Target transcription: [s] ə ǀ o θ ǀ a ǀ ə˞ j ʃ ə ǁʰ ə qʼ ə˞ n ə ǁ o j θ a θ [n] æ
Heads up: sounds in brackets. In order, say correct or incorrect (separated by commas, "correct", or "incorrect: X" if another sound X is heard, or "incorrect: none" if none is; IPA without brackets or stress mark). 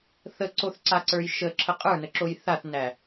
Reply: incorrect: θ, correct